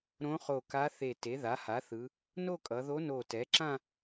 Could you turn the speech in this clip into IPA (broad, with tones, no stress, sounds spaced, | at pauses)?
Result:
ɾ õ˧˥ χ o˧˩ k a˧˥ θ e˧˩ t e˩˥ ð a˩˥ h a˩˥ θ ɯ˩˧ | n o˥˧ kʼ ʌ˩˧ ð o˧˥ n o˧˩ t ɛ˩˥ ǁ ã˥˧